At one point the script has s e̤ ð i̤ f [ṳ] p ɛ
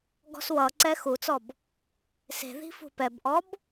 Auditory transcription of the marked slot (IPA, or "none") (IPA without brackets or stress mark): ṳ